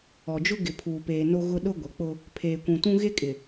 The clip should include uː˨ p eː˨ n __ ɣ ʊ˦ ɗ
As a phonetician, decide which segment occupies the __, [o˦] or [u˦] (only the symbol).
o˦